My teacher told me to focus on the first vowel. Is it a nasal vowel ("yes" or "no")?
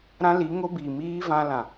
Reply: yes